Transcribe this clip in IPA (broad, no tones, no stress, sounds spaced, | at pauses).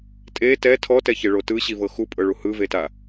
tʼ e t ɛ tʰ ɔ t ɛ ç e ɭ o t ɯ ɕ i v ɤ x u pʼ ɤ ɭ u h ɯ v e t a